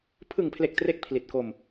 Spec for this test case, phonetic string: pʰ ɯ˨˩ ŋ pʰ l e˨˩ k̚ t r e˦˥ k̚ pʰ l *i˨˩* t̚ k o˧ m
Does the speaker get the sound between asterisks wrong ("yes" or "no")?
no